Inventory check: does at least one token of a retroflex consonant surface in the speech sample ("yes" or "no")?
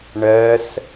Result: yes